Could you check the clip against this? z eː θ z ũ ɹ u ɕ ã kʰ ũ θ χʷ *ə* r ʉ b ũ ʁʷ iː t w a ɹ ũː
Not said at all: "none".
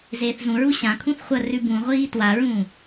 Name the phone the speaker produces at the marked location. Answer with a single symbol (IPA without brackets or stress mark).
ɐ